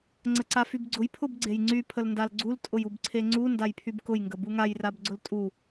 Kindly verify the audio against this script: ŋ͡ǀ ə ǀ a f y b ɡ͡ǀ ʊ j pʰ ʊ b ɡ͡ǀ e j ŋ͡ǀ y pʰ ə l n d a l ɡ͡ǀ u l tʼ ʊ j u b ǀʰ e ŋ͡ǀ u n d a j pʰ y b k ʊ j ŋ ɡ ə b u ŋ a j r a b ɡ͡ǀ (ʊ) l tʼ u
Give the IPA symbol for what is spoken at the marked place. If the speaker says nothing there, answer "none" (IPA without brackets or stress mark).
ʊ